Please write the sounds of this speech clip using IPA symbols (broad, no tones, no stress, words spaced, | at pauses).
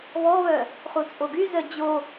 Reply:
βɔβœ | χut͡sʼoɡy zœd͡ʑo